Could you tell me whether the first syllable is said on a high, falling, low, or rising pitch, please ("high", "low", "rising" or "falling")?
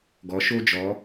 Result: rising